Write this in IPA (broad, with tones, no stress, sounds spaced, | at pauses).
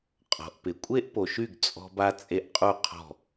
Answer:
qʼ ɔ̤˨ ʔ p ɪ˨ kʷʼ e˦ ʔ p o˨ ʃ y˦˨ ɡ t͡sʼ ɔ̤˦ b a˦ t͡sʼ e˦ ʔ qʼ u˦˨ qʰ ɔ̤˦˨